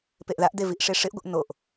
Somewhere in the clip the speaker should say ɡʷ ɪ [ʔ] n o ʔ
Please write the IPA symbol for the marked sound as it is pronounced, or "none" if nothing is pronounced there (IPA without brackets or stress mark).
ʔ